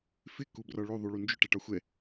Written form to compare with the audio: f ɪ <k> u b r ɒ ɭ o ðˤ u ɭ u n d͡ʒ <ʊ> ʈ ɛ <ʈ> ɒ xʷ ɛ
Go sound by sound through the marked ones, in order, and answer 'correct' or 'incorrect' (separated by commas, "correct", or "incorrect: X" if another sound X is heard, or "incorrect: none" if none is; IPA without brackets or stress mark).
correct, correct, correct